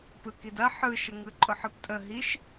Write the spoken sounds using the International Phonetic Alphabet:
p ɯ k i d ɐ ħ ɯ ʃ ə ŋ ɯ ǃʼ ʊ ħ ɯ p tʼ ə ɦ i ʃ

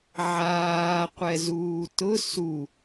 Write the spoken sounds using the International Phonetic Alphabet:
ʕ aː qʷ ɛ z uː t ʊ s u

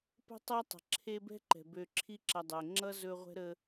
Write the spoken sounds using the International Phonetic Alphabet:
p ə̤˦ tˤ ʌ˦ tˤ ə̤˩ ǁʰ e˦ b ɛ̤˥ ǃ ɛ̤˩ b ø˨ ǁʰ i˦ ǁ ʌ˨ dˤ ɛ˩ ŋ͡ǁ ʌ˥ z ɵ˦ ʁʷ ɛ̤˥ ɾ ə˦

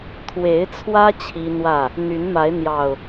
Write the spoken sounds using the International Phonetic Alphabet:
t̪ʰ w e˨˦ ɪ̯ t͡sʰ w ä˦ t͡ɕʰ i˦ n̪ w ä˥˨ | n̪ y˨˦ n m a˨˦ ɪ̯ n̪ j ɑ˨˩ ʊ̯

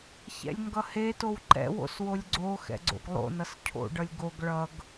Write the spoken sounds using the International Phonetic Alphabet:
ç ɛ̰ lʲ ŋ ɡ ʌ h e t o w ǃ ɛ̰ w o̰ s w o lʲ ɡ͡ǀ o x ɛ̰ ɡ͡ǀ o̰ ɡ lˠ o̰ n ʌ s cʰ o̰ ɖ ʌ lʲ ɡ o ɡ ɭ ʌ ɡ

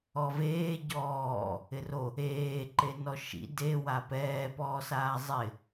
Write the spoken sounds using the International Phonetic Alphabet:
ɔ v eː ɟ ɔː | ɪ r o | eː ǃ e n ɔ ʃ ḭ d e w a p ɛː p ɔː s aː zˤ ɪ

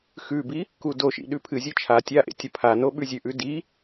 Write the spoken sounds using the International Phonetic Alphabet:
x ʉ b i | k u d o ʃ ḭ ɗ ʉ pʰ ɨ zʲ ɨ t͡ʃʰ a tʲ a ʔ ḛ tʲ ɐ pʰ a n o ɓ ʉ zʲ ʉ ʔ ʉ d i

